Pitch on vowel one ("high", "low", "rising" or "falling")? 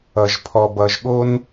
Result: low